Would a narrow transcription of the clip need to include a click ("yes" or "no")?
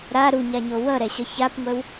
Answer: no